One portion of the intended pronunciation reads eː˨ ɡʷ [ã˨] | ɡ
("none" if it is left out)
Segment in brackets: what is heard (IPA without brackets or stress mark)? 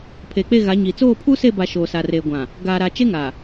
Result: ã˨